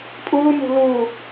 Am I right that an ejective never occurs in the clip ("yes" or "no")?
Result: no